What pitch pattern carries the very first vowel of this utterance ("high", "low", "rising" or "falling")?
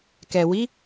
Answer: low